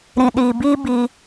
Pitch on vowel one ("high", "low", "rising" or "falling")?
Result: low